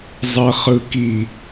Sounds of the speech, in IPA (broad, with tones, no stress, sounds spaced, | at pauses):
zˤ ɜ˨ χ ɯ˨ k i˨